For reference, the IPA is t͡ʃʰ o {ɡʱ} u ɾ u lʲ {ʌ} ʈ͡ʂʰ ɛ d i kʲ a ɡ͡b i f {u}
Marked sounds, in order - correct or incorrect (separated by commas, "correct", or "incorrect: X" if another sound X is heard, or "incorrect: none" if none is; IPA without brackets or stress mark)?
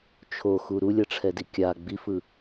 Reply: incorrect: x, correct, incorrect: ɯ